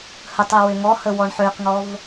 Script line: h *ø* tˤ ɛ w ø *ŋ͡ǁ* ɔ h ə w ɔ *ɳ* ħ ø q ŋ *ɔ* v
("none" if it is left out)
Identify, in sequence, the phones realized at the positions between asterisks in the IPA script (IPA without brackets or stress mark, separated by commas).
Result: ə, ŋ, ɳ, ɔ